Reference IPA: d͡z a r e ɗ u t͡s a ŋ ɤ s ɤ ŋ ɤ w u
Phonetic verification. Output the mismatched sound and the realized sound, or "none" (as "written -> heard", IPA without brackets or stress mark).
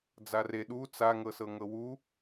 none